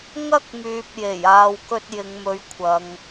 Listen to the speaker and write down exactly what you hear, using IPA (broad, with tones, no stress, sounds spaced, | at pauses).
ŋ ɐ˥ k̚ m yː˨ p̚ j e˨˩ j aː˧ w k ɵ˥ t̚ j ɪ˨˧ ŋ m ɵ˨˥ ɥ kʷʰ ɐ˨˧ ŋ